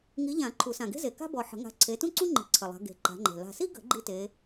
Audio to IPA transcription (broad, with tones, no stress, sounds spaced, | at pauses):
ŋ i˨˦ ʎ ã˨˩˦ ǃʰ u˨˩˦ s ã˨˩ ɡ e̤˥ z e˨˩ k a̤˥ b ɔ˨˩ ħ ə̤˨˩˦ ŋ a̤˨˦ ǀʰ e˨˦ t ũ˥ ǀ ũ˥ ŋ͡ǃ i̤˨˩˦ ǀʰ ə˨˩ lˠ a̤˨˦ ɡ e̤˨˩ ǃ a̤˨˦ ŋ͡ǃ e̤˨˩ l a̤˨˩ s i˥ ɡ ə̤˨˩˦ ɡ͡ǃ i˥ t e˨˦